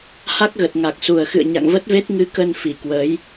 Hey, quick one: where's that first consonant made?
throat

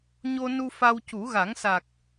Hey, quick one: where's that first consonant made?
palate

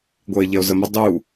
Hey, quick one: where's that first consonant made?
velum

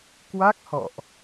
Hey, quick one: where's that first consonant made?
velum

